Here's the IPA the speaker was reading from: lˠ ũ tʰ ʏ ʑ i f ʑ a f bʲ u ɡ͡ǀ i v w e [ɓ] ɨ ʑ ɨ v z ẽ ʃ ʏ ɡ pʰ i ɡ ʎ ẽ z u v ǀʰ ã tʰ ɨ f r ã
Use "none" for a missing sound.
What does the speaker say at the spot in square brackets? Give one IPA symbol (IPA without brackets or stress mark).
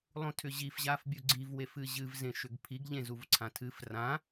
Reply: f